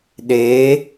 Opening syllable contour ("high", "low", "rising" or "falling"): rising